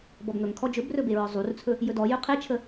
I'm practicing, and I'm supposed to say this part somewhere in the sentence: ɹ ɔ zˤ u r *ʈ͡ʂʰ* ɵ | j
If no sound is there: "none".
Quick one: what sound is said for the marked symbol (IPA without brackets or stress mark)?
t͡sʰ